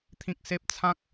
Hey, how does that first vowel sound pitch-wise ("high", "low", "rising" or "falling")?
high